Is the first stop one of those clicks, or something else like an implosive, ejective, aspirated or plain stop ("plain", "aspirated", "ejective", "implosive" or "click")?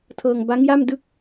aspirated